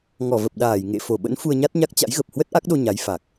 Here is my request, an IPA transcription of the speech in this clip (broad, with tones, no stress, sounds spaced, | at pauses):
ŋ ɔ˧˩ v ə˨˩ p̚ ɗ aː˧˩ j ŋ ḛ˧˨ f o˧˩ ɓ ə̰˧˥ n f u˧ ə̯ ɲ a˦˥ t̚ ɲ a˦˥ k̚ t͡ɕ a̰˧˥ j ɣ ə˨˩ p̚ h w ə˦˥ t̚ ʔ a˦˥ k̚ ɗ o˧ ɲ a˨˦ j f a˨˩ k̚